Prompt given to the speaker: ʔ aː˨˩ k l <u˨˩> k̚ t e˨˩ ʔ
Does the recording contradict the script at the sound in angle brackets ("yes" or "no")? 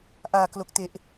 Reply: yes